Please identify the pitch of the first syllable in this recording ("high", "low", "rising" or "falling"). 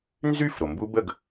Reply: falling